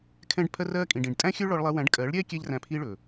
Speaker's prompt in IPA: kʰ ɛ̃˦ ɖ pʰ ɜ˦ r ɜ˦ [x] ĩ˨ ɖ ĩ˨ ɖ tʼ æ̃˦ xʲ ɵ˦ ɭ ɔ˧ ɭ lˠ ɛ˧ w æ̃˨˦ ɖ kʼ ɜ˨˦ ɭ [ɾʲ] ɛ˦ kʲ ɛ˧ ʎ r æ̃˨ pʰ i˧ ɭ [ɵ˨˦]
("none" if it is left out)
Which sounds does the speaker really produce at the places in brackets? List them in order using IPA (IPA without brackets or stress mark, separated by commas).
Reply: kʼ, ɾʲ, ɵ˨